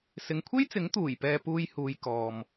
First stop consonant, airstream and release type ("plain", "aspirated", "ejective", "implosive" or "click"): aspirated